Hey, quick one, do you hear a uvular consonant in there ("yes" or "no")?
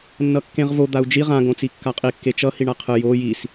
yes